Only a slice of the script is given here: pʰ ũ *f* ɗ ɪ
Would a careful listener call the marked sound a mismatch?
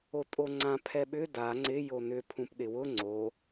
yes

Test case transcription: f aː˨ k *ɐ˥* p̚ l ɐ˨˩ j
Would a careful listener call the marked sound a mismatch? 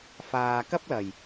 no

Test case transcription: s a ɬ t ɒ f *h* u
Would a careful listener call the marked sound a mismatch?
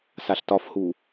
no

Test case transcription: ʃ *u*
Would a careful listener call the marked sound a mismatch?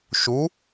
no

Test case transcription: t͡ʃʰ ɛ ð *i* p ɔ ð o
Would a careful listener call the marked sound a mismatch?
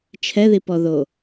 no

